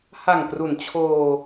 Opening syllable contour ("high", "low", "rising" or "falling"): low